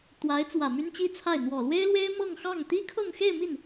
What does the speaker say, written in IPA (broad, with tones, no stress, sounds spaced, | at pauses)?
t̪ w a˧˥ ɪ̯ t͡s w ä˨˩ m y˥ n t͡ɕ i˥ t͡sʰ a˥˩ ɪ̯ n̪ w ɔ˨˩ l w e˥ ɪ̯ l w e˥ ɪ̯ m ɤ˥˧ ŋ x ɑ˥˩ ŋ t̪ i˥ kʰ ɤ˥˧ ŋ x e˥˧ ɪ̯ m i˥˩ n